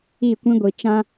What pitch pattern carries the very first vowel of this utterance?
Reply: falling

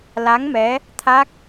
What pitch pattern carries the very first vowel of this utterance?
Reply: rising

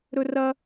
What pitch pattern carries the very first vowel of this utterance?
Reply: high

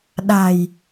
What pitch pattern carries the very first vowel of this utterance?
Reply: low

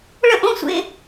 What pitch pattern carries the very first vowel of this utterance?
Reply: falling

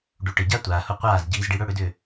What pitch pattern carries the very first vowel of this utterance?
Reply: rising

